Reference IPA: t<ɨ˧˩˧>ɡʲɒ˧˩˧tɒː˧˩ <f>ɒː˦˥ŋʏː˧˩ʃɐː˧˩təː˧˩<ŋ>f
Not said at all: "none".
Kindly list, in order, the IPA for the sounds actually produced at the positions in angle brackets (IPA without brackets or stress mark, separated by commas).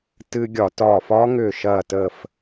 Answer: ɨ˧, f, none